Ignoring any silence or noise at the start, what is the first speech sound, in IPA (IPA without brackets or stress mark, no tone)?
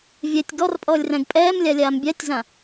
vʲ